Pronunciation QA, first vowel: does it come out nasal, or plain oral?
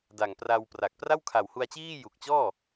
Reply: oral